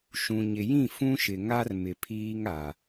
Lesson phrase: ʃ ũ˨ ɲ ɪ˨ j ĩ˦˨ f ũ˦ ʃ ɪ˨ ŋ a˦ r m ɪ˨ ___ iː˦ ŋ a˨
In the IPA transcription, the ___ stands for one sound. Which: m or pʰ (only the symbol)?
pʰ